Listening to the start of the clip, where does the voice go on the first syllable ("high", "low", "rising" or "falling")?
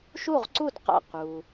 falling